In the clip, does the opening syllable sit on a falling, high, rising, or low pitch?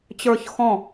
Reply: falling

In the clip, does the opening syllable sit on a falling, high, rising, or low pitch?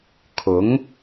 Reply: rising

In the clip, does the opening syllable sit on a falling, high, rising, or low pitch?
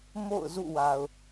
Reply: falling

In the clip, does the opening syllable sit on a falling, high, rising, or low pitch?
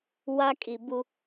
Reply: high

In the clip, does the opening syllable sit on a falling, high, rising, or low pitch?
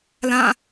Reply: falling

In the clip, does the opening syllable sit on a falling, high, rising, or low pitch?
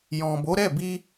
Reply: low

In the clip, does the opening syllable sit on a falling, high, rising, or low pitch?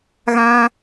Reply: high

